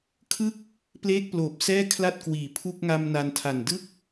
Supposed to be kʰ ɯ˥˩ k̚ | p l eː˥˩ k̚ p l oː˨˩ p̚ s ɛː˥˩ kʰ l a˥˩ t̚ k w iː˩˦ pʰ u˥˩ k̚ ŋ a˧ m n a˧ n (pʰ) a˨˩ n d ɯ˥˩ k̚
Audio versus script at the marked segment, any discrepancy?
yes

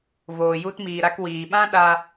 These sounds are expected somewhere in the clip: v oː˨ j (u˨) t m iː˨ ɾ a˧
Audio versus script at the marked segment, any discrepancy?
yes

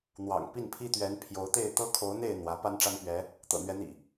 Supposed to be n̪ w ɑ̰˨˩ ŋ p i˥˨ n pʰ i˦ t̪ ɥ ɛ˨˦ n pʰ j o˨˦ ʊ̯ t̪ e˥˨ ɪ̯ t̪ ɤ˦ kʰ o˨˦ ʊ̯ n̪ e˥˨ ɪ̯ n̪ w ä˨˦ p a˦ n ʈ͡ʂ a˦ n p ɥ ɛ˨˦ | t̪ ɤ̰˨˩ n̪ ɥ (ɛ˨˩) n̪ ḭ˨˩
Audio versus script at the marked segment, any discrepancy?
yes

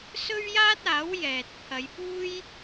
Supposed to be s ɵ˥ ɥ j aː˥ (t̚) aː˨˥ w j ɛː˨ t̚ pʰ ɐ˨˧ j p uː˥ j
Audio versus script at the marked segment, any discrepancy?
no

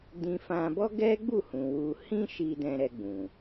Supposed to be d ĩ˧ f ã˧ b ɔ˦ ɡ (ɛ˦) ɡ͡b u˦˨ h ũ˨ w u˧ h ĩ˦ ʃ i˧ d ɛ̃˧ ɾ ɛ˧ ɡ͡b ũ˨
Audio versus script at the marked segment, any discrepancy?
no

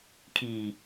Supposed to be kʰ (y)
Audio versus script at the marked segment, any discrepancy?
yes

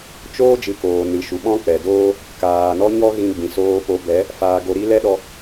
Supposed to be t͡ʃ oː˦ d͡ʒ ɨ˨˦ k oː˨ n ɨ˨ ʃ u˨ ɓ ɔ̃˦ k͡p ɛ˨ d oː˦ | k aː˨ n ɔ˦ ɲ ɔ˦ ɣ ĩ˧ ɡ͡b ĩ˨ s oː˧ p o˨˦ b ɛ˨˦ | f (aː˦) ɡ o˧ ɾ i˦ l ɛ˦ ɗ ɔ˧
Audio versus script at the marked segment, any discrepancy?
yes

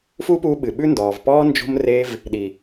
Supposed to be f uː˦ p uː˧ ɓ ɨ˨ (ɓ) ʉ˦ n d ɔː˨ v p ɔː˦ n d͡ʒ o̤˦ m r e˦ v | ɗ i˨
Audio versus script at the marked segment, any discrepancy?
no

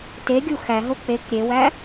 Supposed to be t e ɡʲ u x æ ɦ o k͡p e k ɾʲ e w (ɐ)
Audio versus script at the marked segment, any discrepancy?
yes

